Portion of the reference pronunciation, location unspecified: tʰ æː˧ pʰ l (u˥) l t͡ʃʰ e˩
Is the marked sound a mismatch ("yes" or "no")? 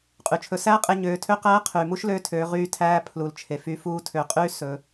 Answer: yes